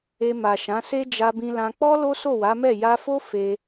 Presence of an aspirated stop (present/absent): absent